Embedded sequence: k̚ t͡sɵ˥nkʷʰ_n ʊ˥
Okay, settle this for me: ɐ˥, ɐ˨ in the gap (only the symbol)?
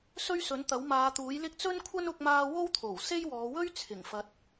ɐ˥